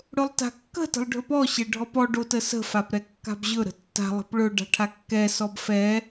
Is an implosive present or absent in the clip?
absent